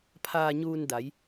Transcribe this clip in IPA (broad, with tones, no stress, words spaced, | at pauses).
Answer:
pʰaː˧ɲuː˧n da˩˧j